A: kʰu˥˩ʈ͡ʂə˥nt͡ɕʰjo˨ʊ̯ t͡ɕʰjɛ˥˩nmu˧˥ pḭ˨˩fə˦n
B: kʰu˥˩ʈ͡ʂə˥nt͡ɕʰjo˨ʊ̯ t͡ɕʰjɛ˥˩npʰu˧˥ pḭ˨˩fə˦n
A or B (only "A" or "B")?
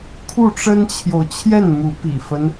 A